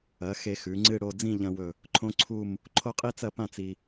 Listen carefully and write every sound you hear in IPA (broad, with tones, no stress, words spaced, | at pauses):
ɐ˩˧ xe˧xʉ˩˧ ŋ͡ǀɨ˥˧ ɽo˥˧ d͡zĩ˥˧ʎɐ̃˧wɵ˧˩ | ǃʰõ˥ǀʰu˥˧m | ǃʰo˥qʼi˥t͡sɐ˥˧pã˥˧ t͡si˧